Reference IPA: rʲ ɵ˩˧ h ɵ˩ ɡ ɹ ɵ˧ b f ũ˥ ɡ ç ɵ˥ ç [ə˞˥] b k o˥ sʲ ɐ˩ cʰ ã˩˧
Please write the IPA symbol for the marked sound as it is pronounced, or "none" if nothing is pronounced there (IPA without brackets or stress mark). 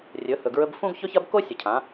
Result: ɐ˥